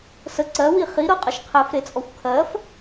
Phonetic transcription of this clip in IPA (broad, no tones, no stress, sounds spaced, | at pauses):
s ə ǀ ɜ w i χ i ɾ ɤ qʼ ə ʃ qʰ ɛ f ɾ e t͡sʼ ɔ xʷ kʰ ɜ f